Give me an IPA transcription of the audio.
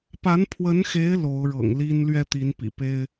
p a˧˥ n pʰ w ə˧˥ n x e˧˥ ɪ̯ l o˧˥ ʊ̯ ɻ ɤ̰˨˩ ŋ l i˥ n l ɥ ɛ˥ t̪ i˧˥ n p ḭ˨˩ p e˥ ɪ̯

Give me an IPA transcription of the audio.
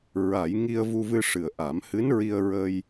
ɹ a˨˩˦ j ŋ i˧ ə̯ v u˧ v ɨ˧ ʂ ɨ˨˩ ə̯ ʔ a˨˩˦ m h ɨ˧˥ n ɹ i˧ ə̯ ɹ ə˧ j

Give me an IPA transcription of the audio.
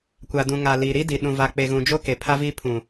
kʷ a˨ d ũ˨ ŋ a˨ l i˨ ɾ i˦ d i˨ ɗ ũ˨ v a˨ k͡p e˨ ɣ ũ˨ d͡ʒ o˦ k e˨ pʰ a˦ v i˦ pʰ ũ˨

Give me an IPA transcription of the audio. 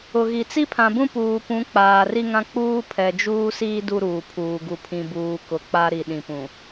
ʊ˨ ɣ i˨ t͡s i˦ pʰ ã˨ b ũ˦ p uː˨ p ũ˨˦ k͡p aː˨ r i˦ ŋ ã˦ k͡p uː˦ pʰ ɛ˨ d͡ʒ uː˦ s iː˦ d u˦ ɾ uː˨ pʰ uː˨ ɡ u˨ pʰ ĩ˨ b uː˨ k ʊ˨ k͡p a˦ ɾ i˨ ɗ ĩ˨ p ũ˨

